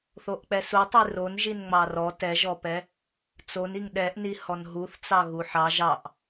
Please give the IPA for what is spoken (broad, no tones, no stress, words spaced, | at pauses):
θoʔk͡pɛsutˤi ronʒin ŋ͡mɑrɔ tɛʒɔpɛ | t͡soniŋ ɗɛʔni hɔnɦuθt͡sɑ ɣuħɑ ʒɑʔ